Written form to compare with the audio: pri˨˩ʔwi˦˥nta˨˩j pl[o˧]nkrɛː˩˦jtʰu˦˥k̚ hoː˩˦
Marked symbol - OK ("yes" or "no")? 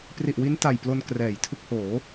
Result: yes